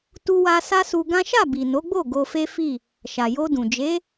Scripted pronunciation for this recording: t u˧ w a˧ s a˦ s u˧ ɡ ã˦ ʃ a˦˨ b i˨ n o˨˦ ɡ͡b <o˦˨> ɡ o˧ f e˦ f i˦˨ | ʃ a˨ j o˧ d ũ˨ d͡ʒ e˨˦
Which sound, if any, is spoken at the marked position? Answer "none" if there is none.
o˦˨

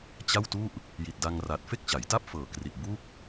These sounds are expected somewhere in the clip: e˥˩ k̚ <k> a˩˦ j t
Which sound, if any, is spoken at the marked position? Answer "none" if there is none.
t͡ɕ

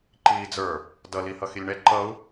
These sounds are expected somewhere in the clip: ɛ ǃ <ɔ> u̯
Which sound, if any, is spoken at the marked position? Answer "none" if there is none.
ʌ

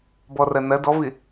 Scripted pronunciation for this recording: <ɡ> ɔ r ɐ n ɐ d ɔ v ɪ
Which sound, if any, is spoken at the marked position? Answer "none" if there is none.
b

